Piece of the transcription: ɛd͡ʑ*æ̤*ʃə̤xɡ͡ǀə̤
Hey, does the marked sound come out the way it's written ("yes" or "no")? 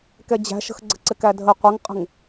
yes